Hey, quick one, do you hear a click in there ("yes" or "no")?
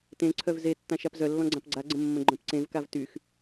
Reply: yes